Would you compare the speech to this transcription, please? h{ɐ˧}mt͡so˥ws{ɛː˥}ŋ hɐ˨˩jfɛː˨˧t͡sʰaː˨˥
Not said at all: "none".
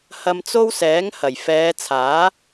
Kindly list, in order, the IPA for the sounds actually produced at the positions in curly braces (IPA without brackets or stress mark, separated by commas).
ɐ˧, ɛː˨˥